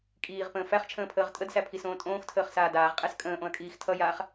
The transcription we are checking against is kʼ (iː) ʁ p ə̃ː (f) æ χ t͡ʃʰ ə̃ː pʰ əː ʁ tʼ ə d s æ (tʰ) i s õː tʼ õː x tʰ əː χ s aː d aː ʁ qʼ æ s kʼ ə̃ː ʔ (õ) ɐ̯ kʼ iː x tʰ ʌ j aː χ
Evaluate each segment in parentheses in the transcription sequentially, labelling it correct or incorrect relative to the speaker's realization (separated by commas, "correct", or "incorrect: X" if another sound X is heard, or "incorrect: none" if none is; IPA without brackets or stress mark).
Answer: correct, correct, incorrect: pʰ, correct